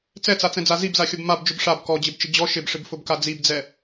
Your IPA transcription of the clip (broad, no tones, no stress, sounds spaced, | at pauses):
t͡s ɛ t͡s a t͡s ɛ̃ d͡z a z i b z a xʲ o b m a b d͡ʒ ʊ b ʂ a b k ɔ d͡ʑ ɪ b t͡ʃ ɪ d͡ʑ ɔ ʃ ɪ b ʂ ɪ b f ʊ b k a d͡z i b d͡z ɛ